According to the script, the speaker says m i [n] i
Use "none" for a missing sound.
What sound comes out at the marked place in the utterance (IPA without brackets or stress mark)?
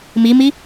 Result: m